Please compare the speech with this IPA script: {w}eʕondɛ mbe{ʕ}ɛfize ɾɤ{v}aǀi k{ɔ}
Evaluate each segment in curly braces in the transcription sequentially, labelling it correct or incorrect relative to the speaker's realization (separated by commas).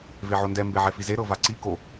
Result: incorrect, correct, correct, incorrect